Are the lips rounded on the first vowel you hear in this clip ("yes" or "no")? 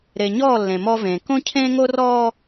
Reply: no